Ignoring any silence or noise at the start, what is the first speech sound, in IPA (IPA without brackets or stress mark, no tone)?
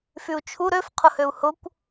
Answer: f